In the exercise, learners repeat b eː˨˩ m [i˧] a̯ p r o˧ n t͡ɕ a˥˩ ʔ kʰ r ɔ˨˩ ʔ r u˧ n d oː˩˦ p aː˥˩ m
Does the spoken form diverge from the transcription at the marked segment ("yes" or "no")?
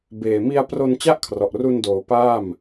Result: no